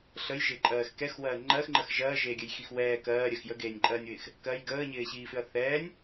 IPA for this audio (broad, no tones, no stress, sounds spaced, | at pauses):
ɬ ə j ʒ ɪː ǃʼ ɜː x k ɛ x w ɜː ŋ͡ǃ ɜ x ŋ͡ǃ ə x ʒ ɜː ʒ eː ɡʲ ə j x i x w ɛː k ɜː ɾʲ ɜ x j ə ɡ eː nʲ ǃʼ ɜː nʲ w ɪː x | k ɜ j ɡ əː ɲ ɪː ɕ iː f ɪ ɐ̯ θ ɛː nʲ